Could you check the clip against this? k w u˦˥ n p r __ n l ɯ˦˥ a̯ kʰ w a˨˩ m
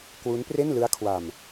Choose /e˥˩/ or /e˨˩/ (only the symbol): e˥˩